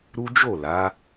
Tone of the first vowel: high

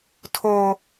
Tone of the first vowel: high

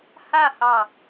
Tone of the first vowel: falling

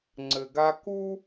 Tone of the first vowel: low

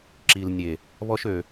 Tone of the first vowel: low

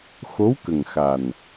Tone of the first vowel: rising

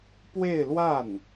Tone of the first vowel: falling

